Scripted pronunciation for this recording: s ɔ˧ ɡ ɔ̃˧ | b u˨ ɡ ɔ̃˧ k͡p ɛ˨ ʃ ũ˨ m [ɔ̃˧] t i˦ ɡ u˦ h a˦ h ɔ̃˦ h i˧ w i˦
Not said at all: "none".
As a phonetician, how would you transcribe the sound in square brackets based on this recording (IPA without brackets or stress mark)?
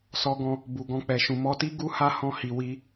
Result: ɔ˧